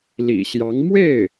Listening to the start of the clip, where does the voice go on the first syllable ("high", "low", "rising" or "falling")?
low